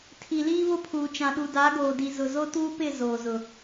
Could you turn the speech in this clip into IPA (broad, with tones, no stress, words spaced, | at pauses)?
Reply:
tʰi˨liː˦βʊ˦pʰuː˨ t͡ʃã˨ɗu˨da˨˦ ɡoː˨di˨ zʊ˨zo˦tuː˦pɪ˦˨ zoː˨zʊ˨